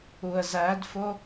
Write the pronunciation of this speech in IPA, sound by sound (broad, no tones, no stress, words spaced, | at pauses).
uə̯zædfo